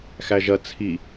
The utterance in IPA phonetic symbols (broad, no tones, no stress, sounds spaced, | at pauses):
x æ ʒ ɐ t͡sʰ i